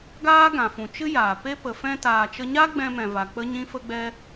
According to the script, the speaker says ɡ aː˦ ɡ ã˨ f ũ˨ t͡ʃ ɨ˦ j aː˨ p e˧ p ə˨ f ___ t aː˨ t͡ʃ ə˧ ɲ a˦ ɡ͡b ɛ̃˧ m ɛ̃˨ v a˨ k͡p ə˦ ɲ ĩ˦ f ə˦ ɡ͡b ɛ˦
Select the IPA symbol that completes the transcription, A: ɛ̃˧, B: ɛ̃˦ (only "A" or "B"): A